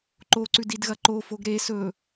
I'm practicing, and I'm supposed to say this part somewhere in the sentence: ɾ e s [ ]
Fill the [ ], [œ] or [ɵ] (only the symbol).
ɵ